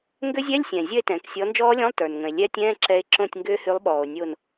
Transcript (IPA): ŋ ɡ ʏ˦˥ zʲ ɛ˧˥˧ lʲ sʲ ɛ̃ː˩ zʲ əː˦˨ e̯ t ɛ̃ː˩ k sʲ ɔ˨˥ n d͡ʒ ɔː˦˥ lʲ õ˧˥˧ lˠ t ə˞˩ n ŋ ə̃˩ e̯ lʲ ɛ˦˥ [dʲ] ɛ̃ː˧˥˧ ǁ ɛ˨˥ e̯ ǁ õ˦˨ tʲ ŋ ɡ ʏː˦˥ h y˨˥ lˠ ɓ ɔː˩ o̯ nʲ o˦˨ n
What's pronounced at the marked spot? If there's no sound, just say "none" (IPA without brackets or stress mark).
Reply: tʲ